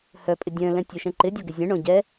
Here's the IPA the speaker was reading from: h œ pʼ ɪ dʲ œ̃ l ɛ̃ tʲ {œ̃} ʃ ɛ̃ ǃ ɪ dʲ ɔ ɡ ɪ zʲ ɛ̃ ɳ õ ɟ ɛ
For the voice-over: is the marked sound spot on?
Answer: no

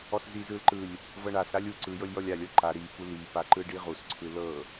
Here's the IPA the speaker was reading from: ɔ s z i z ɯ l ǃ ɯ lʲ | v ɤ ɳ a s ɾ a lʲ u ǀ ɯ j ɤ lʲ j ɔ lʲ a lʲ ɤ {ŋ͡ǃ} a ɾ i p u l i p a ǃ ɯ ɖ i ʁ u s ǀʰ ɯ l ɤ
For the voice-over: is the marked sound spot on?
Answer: no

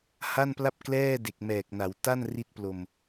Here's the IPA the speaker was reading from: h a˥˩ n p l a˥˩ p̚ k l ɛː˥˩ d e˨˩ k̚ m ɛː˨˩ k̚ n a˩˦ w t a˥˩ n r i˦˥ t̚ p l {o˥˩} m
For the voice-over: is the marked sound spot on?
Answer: no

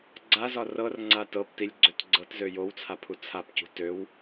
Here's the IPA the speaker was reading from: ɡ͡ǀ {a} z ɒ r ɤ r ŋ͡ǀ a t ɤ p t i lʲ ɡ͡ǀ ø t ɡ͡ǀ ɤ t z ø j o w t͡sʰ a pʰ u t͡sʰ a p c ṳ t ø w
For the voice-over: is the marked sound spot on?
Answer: yes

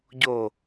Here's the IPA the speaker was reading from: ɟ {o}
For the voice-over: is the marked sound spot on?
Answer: yes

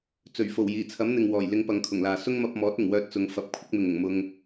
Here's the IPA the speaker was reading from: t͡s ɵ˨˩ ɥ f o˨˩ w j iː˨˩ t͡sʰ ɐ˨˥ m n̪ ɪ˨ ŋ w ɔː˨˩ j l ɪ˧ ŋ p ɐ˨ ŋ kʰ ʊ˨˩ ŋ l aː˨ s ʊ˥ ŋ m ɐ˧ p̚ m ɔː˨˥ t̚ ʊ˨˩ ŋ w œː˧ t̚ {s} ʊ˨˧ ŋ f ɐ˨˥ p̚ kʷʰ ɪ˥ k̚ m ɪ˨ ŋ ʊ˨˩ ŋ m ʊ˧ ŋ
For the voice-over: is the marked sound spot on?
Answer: no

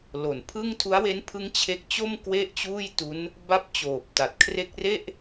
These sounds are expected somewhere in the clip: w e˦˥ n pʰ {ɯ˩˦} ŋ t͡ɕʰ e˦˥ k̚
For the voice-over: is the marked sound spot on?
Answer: no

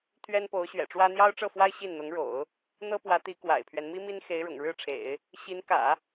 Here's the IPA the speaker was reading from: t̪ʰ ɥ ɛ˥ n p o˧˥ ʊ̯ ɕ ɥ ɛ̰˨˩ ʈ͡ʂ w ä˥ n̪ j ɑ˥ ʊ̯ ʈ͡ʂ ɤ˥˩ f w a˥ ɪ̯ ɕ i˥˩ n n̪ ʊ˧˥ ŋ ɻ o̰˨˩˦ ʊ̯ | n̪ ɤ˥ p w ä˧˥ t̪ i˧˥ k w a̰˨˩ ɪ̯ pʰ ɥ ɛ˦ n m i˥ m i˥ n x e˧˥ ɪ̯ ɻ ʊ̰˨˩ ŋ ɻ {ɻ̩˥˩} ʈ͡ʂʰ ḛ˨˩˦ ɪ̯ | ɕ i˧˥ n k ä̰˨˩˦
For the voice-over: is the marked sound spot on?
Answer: yes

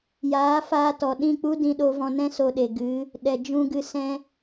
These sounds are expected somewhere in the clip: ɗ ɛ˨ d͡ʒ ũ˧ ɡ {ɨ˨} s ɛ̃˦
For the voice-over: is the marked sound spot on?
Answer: no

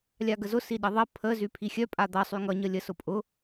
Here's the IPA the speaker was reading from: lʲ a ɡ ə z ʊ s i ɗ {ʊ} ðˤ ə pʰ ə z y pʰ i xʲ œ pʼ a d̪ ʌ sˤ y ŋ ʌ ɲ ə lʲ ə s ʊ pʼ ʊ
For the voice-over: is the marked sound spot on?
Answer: no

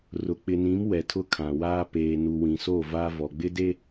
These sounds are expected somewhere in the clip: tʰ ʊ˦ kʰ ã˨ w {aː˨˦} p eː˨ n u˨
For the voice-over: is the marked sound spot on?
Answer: no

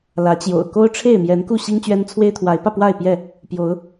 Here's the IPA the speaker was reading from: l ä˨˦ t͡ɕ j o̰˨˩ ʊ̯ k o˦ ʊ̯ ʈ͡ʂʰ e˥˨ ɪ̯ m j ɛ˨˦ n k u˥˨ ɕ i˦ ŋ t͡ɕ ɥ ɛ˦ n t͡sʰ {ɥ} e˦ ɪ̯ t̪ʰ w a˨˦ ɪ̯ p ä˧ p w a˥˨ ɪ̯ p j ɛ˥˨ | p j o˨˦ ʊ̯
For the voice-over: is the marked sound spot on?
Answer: no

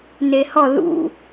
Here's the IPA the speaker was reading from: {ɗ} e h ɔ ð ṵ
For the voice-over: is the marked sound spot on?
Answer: no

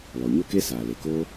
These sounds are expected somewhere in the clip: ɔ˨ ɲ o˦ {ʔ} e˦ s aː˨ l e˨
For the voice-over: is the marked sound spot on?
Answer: no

